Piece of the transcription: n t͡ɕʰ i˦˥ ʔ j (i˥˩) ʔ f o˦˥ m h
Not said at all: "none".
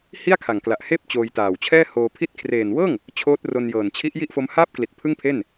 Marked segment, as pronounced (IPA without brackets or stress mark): i˥˩